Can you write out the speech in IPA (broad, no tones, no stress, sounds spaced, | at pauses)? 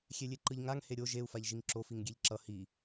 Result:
xʲ e lʲ e ǃ ɯ ʎ ŋ a ŋ h e ɾʲ o ʒ e u̯ f a ʎ ʒ i ŋ ǁ o f i ŋ ɡʲ e ʎ ǁ ʌ h i